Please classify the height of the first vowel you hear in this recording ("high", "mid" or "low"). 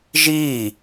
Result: high